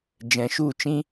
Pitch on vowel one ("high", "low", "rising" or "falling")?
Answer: low